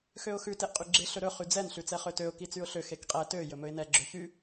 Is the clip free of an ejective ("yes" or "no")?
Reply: no